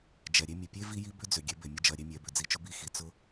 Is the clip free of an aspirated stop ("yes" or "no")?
yes